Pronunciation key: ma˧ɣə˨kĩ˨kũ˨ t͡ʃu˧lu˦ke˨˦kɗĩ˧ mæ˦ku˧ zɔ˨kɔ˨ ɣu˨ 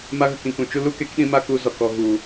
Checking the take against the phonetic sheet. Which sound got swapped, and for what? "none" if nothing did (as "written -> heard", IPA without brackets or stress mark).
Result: æ˦ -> a˦